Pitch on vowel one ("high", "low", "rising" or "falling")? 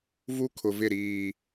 high